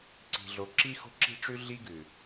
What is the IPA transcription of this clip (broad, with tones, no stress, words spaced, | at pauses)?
ǀi̤˨ɮo˨ǁi˦ xo̤˦ǁi̤˦ʈ͡ʂʉ˦ ɮi˦ɡʉ˨